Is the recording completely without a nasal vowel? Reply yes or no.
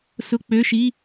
yes